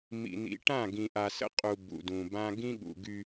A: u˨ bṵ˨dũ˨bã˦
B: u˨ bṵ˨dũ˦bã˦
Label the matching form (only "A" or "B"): A